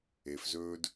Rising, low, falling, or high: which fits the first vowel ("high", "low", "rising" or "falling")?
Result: low